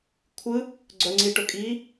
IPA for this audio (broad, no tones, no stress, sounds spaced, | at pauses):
kʷʰ ɯ | ɡ͡ǀ œ ŋ͡ǀ i ʈ ɵ kʼ i